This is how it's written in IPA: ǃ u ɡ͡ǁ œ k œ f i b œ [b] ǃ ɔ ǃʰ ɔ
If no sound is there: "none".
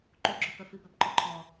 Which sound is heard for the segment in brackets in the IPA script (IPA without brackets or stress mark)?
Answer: b